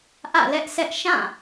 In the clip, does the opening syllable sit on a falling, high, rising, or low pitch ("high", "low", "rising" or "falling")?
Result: falling